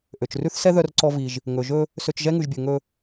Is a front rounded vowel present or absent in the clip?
present